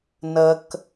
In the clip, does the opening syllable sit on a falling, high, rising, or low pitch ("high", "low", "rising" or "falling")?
high